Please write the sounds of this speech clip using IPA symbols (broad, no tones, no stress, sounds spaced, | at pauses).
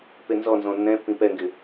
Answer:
p e n z ɔ n z ɔ̃ nː ɛ̃ pː ĩ p ɛ ŋ ɡ ɪ